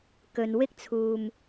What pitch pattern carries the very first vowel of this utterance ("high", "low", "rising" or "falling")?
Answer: low